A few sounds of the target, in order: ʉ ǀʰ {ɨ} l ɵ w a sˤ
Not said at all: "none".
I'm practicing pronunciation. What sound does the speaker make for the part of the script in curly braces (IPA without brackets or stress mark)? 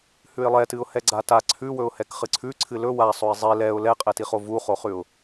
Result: ɨ